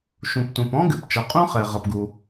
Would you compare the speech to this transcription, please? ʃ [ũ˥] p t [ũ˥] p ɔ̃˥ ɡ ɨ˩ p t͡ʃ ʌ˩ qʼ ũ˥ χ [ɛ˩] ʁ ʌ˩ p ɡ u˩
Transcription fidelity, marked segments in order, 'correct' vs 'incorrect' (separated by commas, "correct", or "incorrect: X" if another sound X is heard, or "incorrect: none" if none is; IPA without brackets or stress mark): incorrect: ũ˩, incorrect: ũ˩, correct